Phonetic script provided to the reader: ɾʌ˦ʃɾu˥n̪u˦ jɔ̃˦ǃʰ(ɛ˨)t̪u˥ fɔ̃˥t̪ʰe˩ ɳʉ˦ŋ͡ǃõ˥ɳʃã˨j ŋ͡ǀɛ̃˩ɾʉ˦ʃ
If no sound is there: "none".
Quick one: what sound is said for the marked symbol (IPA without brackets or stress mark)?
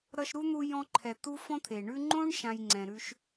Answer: ɛ˨